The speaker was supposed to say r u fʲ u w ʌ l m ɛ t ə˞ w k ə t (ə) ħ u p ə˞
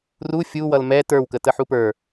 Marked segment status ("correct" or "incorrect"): correct